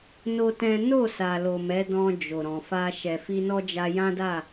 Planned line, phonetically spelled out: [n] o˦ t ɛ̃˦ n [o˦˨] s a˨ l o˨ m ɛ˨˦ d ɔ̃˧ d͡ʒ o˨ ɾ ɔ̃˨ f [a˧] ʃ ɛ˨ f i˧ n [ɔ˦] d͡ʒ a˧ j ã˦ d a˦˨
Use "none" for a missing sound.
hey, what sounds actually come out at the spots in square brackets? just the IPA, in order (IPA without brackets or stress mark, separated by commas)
n, o˦˨, a˧, ɔ˦